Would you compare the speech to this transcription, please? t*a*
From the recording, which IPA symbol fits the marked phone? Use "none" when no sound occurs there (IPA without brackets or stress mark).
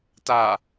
a